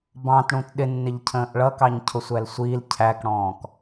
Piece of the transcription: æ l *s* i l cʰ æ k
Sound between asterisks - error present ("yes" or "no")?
yes